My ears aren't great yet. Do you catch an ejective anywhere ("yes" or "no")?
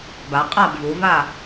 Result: yes